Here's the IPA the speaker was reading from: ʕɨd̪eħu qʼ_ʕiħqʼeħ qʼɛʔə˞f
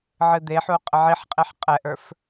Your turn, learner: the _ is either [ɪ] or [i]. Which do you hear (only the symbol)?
ɪ